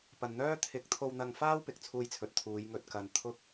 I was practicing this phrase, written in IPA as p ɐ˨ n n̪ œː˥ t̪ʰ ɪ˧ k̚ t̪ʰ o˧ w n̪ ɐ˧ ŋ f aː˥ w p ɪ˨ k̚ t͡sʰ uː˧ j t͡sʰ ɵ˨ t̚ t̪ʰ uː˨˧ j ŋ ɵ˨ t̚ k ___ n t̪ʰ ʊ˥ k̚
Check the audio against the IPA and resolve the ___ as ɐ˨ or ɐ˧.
ɐ˨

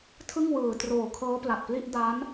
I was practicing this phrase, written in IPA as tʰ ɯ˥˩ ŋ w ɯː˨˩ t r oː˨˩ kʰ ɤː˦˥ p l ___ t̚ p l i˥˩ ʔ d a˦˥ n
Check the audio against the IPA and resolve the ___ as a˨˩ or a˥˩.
a˨˩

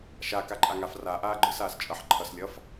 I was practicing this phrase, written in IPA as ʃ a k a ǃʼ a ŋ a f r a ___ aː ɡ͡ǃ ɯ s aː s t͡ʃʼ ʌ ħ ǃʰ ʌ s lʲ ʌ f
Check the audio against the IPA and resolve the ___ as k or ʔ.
ʔ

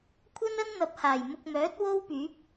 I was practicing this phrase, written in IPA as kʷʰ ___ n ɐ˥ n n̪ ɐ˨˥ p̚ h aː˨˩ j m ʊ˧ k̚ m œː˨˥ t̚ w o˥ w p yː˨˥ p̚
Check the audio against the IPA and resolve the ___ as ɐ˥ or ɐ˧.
ɐ˥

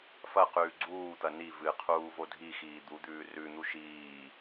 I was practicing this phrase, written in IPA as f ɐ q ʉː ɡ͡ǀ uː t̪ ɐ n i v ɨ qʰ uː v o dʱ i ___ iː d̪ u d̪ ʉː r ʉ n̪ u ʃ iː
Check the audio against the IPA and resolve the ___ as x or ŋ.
x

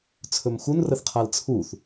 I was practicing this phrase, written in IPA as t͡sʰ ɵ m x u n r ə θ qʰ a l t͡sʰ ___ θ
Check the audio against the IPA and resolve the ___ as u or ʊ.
u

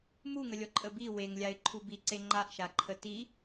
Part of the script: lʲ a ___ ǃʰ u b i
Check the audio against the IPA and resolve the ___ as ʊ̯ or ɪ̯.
ɪ̯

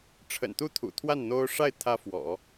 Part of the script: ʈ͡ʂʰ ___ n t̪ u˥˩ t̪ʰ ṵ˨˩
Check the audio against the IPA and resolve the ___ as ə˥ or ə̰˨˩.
ə̰˨˩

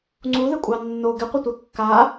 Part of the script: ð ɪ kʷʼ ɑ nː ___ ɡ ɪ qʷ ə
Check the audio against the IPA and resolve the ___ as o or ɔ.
o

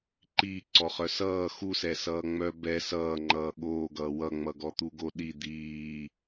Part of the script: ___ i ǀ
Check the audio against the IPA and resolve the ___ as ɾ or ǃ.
ǃ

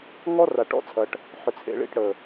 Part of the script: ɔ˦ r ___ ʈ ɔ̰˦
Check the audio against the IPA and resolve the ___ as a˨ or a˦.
a˨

